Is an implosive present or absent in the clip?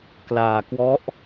absent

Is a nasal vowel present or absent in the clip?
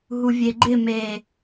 absent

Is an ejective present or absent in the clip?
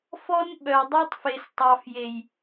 absent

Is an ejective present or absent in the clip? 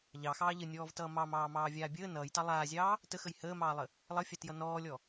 absent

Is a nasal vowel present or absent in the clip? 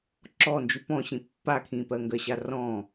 present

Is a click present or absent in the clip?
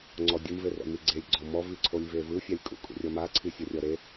present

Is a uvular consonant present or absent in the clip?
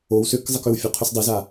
present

